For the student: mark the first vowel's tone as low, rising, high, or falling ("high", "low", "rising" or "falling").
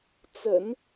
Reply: low